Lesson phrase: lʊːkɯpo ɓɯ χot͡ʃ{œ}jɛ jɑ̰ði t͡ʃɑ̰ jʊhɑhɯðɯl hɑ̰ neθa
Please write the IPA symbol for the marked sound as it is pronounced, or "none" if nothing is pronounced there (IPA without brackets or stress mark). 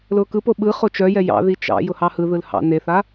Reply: œ